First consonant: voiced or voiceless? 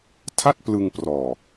voiceless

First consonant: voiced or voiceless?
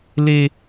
voiced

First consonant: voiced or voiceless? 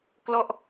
voiceless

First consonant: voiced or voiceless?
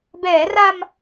voiced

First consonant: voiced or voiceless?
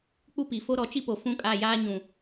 voiceless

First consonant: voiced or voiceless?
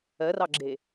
voiced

